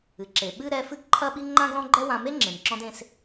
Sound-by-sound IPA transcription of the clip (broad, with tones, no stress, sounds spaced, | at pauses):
ɨ˩ ǁ e˩ ɓ ɨ˥ ɾ ɛ˧ f ɨ˥ ɡ ǃʰ ɐ˥ ɓ i˥ ŋ͡ǃ ã˥ ɡ l ɔ̃˥ ɡ͡ǃ ɛ˥ w ã˧ m e˥ ŋ͡ǁ ẽ˩ m ǁ ɔ̃˧ d ẽ˧ s